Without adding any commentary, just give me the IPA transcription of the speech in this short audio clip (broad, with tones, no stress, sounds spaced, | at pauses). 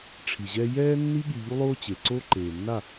ʈ͡ʂʰ i˨ ʑ ɛ˦ j ɛː˦ nː i˦ ɠ i˧ ʎ u˦ lˠ oː˦ t͡ɕ e˨ ǀ oː˦ ǃ eː˨ nː a˦˨